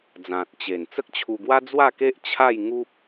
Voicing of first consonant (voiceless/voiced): voiced